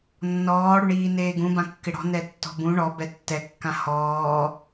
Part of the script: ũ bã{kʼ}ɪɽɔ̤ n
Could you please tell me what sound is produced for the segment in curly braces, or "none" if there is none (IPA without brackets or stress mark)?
kː